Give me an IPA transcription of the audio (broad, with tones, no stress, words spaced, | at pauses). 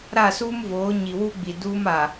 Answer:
ɾa˦˨suː˦mvoː˨˦ ɲi˨wu˦ɡ͡bi˨ duː˦m a˨